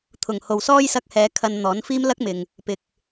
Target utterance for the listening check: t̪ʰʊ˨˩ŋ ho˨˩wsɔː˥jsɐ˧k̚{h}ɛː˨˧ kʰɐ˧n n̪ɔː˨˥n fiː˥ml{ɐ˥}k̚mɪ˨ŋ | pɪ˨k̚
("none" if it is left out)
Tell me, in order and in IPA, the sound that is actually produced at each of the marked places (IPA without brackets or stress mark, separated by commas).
h, ɐ˥